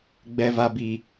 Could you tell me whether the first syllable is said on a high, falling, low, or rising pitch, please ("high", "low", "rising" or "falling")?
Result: low